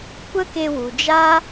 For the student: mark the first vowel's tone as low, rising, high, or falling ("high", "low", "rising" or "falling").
high